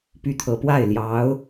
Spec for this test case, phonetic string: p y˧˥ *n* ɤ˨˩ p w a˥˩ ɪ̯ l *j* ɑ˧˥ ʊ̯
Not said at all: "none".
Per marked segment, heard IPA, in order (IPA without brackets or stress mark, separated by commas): t̪ʰ, j